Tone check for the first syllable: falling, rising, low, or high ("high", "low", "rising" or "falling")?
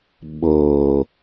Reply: low